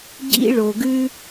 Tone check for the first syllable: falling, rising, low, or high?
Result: high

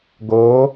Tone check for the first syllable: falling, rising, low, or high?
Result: rising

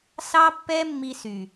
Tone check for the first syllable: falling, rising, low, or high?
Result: high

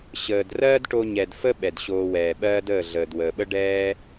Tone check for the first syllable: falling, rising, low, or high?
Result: low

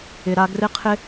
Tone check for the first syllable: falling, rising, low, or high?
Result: low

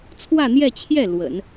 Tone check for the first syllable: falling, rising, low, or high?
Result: falling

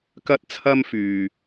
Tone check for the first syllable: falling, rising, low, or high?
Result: high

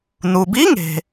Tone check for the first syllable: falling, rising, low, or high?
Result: low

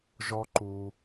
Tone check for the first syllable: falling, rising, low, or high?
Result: high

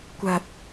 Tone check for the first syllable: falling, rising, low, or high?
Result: low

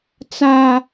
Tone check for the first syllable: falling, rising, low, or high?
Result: high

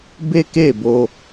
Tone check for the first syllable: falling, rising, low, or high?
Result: high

